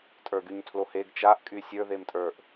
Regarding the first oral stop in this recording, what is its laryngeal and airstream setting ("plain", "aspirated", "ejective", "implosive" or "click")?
ejective